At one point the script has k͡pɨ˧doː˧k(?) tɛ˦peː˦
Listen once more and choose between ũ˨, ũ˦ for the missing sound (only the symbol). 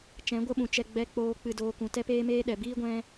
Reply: ũ˨